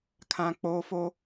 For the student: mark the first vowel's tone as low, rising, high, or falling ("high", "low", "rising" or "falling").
low